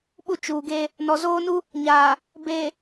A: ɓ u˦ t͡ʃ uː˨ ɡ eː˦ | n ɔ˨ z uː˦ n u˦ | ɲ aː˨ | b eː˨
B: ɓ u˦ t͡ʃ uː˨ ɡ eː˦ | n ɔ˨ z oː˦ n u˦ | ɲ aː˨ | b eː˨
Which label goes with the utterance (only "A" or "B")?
B